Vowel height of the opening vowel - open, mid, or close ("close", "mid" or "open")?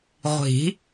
close